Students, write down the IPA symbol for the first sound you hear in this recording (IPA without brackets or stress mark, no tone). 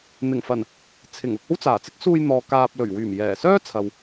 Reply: n̪